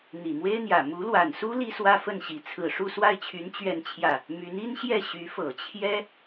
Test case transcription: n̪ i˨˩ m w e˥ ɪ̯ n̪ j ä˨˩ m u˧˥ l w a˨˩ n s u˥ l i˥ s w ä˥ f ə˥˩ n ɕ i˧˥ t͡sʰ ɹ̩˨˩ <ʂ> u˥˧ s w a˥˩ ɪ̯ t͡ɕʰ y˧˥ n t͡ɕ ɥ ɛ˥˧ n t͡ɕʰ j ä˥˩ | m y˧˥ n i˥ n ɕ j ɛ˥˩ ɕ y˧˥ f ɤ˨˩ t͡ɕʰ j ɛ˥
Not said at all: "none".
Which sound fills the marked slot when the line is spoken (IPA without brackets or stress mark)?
ʂ